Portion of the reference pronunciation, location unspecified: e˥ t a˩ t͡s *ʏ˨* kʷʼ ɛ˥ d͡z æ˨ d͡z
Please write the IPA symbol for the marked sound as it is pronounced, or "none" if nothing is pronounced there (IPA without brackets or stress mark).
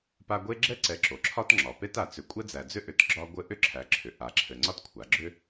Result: ʏ˨